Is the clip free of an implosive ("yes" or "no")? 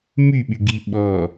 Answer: no